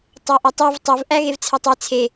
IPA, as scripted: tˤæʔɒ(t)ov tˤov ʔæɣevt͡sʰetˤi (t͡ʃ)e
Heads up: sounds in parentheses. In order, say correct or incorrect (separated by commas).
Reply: incorrect, incorrect